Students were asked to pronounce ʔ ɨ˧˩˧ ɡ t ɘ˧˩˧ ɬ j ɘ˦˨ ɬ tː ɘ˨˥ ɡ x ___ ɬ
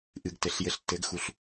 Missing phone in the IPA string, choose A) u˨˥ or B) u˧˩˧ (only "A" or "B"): B